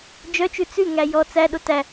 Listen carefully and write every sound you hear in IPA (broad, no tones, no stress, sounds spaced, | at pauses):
d͡ʒ œ t͡ʃ ʉ t͡s ʉ ŋ æ j ɔ t͡s æ ɗ o t æ